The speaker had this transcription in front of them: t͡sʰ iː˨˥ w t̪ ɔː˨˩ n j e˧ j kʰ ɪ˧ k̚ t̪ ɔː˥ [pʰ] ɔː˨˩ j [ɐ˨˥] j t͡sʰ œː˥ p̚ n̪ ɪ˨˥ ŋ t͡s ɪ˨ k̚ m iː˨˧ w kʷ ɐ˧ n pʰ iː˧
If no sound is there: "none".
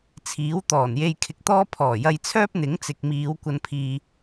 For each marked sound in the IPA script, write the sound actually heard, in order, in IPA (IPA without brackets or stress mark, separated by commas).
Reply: pʰ, ɐ˧